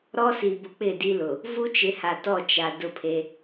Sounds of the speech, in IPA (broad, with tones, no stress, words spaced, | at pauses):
ɾɔ˦si˨bʊ˨ k͡pɪ˦˨di˦lʊ˨ | vu˦t͡ʃɪ˨˦ha˨ tɔ˦˨t͡ʃa˨ dʊ˦˨pʰe˦